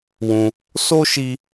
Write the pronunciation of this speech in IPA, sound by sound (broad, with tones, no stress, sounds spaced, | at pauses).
w ũ˧ | s o˦ ʃ i˧